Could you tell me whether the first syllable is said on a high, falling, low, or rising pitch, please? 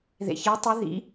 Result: low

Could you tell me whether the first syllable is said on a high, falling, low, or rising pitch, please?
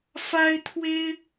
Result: high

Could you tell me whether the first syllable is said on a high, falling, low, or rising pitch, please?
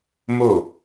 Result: falling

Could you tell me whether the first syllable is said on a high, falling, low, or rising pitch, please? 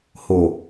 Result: low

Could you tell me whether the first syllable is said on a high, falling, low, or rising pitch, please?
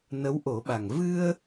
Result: rising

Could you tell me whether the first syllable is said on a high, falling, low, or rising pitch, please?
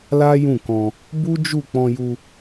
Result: high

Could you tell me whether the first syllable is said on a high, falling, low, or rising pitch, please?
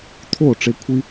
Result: falling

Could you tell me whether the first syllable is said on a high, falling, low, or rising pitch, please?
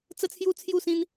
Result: high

